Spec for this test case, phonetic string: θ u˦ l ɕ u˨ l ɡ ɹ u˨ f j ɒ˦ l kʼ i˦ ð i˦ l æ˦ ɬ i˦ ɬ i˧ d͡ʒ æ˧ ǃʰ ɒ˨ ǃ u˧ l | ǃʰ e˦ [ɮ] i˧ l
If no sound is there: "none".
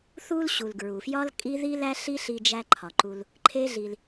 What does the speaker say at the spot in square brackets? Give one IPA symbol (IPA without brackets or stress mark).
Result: ɮ